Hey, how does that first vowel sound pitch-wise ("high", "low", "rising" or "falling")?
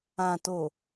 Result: low